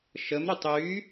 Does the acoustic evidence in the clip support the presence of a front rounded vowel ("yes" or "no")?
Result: yes